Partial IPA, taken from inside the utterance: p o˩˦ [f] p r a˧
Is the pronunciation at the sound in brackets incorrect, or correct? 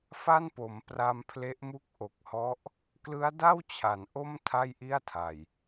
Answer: incorrect: m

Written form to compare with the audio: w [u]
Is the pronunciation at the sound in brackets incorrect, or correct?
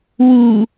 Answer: correct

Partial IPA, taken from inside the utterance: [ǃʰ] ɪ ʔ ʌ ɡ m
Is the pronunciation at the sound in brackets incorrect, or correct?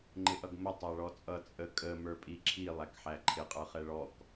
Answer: incorrect: ŋ͡ǃ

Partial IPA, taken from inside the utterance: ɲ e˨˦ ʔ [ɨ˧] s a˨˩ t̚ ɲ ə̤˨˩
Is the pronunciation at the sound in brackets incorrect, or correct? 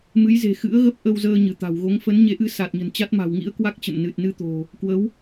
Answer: correct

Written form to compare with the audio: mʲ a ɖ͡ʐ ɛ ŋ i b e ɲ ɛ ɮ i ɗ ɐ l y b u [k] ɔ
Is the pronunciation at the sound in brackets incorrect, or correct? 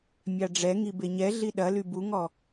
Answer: incorrect: ŋ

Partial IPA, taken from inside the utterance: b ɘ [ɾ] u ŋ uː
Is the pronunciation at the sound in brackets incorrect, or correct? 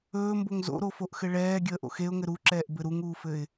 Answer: correct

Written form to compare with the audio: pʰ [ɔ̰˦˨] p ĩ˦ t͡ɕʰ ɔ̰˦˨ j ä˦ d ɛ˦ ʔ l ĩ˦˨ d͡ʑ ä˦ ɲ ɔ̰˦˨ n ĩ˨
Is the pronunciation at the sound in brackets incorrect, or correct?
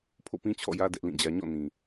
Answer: incorrect: o̰˦˨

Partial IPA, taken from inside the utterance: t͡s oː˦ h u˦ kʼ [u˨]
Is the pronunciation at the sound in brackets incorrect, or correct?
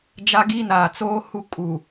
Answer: correct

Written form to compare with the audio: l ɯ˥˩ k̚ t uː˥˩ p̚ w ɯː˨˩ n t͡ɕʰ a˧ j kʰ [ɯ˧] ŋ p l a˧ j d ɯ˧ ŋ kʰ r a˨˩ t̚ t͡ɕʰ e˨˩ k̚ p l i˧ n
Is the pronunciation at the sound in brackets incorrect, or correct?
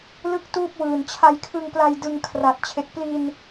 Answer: correct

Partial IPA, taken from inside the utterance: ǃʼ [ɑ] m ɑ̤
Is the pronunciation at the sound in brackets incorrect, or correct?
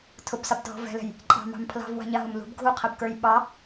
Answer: incorrect: ɑ̤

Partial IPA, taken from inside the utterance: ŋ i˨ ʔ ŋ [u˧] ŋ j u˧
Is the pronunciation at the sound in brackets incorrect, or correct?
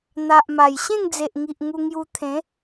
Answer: correct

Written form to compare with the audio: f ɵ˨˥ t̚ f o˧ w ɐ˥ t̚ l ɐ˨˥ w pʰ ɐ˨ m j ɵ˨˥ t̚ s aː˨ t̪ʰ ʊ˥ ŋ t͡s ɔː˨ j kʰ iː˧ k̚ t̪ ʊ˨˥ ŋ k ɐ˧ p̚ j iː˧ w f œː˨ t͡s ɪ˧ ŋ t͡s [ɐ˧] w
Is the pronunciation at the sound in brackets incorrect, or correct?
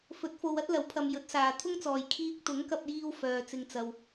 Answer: correct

